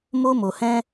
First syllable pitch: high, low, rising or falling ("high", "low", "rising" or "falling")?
high